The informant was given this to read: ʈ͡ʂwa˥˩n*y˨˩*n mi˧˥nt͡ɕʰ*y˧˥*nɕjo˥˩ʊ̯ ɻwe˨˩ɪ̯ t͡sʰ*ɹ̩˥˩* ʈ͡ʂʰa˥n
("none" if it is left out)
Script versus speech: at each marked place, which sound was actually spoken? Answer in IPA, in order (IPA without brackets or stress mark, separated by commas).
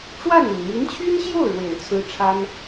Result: y˨˩, y˥, ɹ̩˥